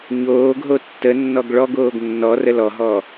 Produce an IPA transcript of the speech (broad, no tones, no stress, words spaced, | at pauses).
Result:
ɲoːɡɦo tːənːɔɡ ɭɔɡoːɡ nːɔrə lɔɦɔ